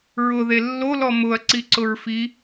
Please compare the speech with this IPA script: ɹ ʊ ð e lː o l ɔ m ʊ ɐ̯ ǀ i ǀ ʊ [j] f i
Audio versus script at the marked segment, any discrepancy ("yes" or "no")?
yes